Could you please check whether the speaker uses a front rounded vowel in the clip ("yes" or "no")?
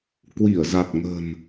no